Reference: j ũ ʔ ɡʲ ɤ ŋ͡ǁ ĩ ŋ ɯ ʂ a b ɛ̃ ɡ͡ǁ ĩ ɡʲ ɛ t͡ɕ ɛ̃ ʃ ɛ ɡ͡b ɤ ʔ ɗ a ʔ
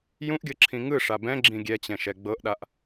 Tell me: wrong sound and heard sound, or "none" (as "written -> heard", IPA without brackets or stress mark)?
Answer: ŋ͡ǁ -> ǁʰ